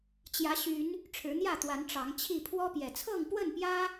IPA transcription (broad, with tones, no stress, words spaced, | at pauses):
t͡ɕjä˨˦ɕy˨˦n | ʈ͡ʂʰɻ̩˨˦n̪jä˥˨t̪wa˨˦n ʈ͡ʂɑ˨˦ŋt͡ɕʰi˥˨ pʰwɔ˦pjɛ˨˩ t͡sʰɤ˥˨ŋpwə˥˨npjä˦